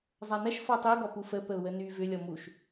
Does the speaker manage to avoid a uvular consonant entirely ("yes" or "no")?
yes